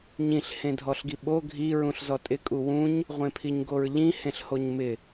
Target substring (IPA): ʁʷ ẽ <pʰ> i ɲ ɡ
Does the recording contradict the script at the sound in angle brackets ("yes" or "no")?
no